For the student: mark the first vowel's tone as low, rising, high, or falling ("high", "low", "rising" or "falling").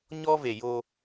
high